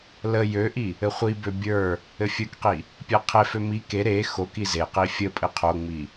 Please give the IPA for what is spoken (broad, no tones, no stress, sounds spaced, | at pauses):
l ə j ø ʔ i | ɘ χʷ i b ø bʲ ə˞ | ɘ fʲ ə˞ k q i | pʲ a qʰ e f ø m i k e ɾ e x o k i z e q i fʲ ə pʼ ɘ qʰ o ŋ͡m i